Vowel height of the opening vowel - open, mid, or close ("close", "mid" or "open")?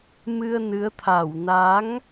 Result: close